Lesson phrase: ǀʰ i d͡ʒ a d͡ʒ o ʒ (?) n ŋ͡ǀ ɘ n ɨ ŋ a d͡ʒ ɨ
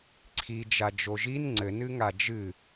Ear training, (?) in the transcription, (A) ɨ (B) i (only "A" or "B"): B